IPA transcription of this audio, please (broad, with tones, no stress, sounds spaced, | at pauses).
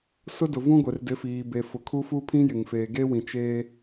s ʊ˦ d ʊ˨ v ũ˦ ɡʷ e˨ r d ɪ˨˦ f iː˨ b e˨ f ʊ˨ kʰ u˦ f u˦ pʰ ĩ˦ j ɪ˨ ŋ f eː˨ ɡ e˦ w ĩ˨ t͡ʃ eː˦